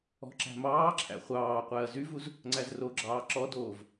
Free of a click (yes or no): no